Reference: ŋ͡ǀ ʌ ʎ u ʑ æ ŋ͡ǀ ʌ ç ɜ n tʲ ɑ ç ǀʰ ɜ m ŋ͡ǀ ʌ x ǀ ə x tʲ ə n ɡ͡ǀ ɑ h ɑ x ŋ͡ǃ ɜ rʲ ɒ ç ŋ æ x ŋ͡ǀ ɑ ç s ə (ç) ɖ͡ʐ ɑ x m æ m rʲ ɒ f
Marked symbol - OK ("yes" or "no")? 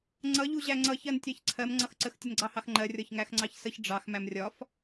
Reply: yes